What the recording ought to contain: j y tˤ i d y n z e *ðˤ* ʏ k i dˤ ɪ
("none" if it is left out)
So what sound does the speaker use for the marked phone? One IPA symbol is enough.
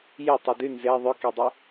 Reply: ðˤ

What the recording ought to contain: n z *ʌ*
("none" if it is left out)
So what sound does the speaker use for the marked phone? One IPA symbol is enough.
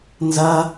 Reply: ʌ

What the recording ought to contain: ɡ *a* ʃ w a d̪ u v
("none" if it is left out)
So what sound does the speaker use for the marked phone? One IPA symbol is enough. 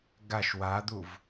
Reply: a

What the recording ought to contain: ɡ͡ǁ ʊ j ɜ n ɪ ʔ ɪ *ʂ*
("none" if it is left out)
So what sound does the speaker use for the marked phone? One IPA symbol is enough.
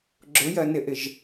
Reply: ʒ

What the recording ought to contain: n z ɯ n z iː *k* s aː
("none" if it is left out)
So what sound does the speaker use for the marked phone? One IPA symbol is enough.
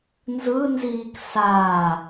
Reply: k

